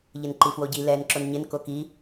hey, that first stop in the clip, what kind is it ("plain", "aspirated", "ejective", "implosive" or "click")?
click